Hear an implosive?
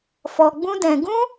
no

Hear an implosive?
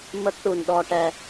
yes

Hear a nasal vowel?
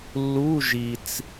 no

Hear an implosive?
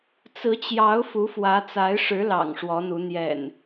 no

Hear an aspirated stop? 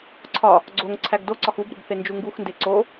yes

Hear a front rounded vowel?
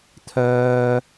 yes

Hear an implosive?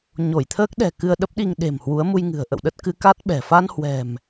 yes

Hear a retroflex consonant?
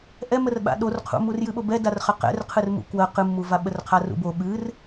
no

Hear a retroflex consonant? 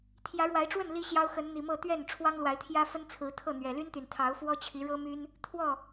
yes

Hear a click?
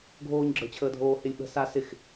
yes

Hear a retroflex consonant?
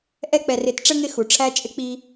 yes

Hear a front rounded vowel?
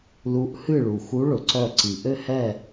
yes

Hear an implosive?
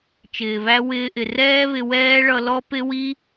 no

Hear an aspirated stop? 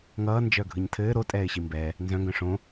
yes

